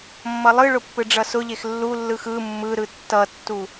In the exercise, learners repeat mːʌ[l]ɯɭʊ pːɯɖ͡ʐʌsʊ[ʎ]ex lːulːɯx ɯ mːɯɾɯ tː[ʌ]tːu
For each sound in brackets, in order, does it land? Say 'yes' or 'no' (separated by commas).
no, yes, yes